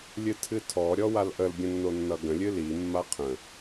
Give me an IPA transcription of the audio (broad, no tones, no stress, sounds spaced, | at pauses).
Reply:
lʲ ɨ tʰ ɨ tʰ ɔ ɾʲ ɔ w a l ʔ ə l ɡʲ ə̃ nː o nː ʌ ɡ ə̃ lʲ ɨ l i mː a qʰ ə̃